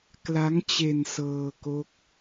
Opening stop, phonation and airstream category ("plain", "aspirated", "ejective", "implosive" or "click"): plain